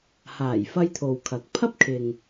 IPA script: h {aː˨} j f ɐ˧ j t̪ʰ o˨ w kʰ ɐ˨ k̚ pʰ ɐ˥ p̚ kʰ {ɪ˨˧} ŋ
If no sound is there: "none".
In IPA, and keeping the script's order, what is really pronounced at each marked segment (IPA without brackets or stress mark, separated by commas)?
aː˨˩, ɪ˨